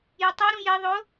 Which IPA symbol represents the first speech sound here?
j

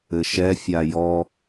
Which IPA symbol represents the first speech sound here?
ɘ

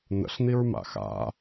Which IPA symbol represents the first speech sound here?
n̪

